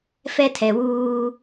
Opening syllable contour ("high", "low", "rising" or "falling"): high